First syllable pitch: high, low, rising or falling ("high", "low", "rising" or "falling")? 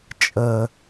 low